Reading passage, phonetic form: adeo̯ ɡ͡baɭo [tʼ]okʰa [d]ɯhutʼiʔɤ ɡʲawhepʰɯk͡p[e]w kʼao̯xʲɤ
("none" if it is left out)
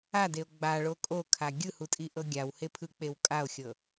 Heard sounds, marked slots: kʼ, ɡʲ, e

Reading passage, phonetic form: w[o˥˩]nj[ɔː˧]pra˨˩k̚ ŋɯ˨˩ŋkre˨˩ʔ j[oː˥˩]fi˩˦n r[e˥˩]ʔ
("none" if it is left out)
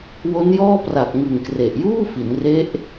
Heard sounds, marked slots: o˦˥, ɔː˥˩, uː˥˩, e˦˥

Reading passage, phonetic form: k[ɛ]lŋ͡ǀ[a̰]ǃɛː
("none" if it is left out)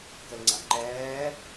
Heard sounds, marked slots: ə, a̰

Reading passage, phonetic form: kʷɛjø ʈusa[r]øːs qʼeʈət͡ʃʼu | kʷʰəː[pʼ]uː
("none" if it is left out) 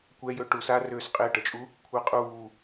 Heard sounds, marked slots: r, qʼ

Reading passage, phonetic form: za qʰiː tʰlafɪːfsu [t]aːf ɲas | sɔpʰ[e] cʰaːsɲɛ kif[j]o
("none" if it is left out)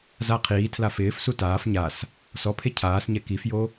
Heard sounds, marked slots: t, e, j

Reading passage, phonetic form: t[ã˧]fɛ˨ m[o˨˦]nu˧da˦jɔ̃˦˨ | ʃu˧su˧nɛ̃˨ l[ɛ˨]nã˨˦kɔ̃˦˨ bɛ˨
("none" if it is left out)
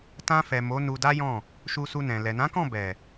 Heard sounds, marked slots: ã˧, o˨˦, ɛ˨

